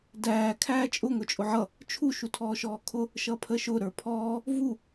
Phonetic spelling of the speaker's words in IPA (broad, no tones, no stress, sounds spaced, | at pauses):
d æː kʰ æː t͡ʃʼ ʊ ŋ ʊ t͡ʃʼ ʊ ʕ ʌ | t͡ʃʰ u ʃ u tʰ ɔː ʃ ɔː kʰ ʊ | ʃ ʌ pʰ ə ʃ ʊ ɾ ə˞ pʰ ɔː | v u